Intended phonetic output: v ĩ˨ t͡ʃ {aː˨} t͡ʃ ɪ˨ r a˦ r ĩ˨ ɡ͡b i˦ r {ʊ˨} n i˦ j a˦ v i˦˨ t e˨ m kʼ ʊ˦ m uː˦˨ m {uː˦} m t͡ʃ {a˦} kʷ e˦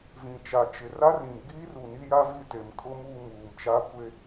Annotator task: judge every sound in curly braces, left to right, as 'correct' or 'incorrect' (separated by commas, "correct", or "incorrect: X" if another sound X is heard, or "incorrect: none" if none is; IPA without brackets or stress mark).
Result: incorrect: a˨, incorrect: u˨, incorrect: uː˨, correct